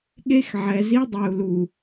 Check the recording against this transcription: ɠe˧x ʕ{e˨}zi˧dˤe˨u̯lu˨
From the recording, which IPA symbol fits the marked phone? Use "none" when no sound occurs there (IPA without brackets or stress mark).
ɛ˨